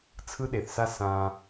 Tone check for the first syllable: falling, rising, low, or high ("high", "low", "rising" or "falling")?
high